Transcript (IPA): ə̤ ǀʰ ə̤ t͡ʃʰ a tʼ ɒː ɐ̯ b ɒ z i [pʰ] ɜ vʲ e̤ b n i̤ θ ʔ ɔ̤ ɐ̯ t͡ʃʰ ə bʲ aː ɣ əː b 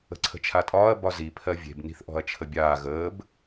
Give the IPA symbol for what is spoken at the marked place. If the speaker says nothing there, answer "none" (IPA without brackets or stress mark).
pʰ